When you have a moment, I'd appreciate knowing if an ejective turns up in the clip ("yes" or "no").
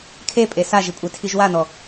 yes